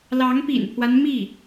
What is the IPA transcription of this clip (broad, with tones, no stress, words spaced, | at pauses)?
lɑ˧˥ŋpḭ˨˩npʰwa˦n mi˥˩